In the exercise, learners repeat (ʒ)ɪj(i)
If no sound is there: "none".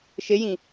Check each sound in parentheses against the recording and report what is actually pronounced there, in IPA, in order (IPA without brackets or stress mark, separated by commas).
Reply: ʃ, ĩ